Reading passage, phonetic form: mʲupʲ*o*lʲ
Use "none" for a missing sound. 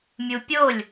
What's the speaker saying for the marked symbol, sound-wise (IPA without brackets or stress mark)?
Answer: o